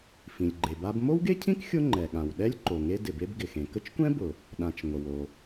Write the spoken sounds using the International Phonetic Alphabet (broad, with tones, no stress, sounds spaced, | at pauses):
f ĩ˩ lʲ ɡ͡ǃ e˩ b a˥ b m o˥ w ɡ e˥ cʰ ĩ˥ k xʲ ʊ˥ ŋ͡ǃ ɛ˩ ɠ ã˩ w ɗ ɛ˥ lʲ ǃ o˩ ŋ e˥ d ɪ˩ b e˥ b ɡ ɪ˩ x ẽ˩ k ə˥ t͡ʃ kʷ ɛ̃˥ b ʊ˩ | ɗ ã˩ t͡ʃ ŋʷ ə˩ w o˩